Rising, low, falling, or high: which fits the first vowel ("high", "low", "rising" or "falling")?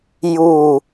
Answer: falling